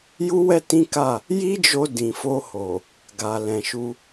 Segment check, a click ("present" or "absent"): absent